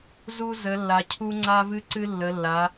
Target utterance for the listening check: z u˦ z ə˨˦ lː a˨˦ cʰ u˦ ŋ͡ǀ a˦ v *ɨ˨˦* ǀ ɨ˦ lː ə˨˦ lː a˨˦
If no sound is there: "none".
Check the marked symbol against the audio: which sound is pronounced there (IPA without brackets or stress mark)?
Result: ɨ˦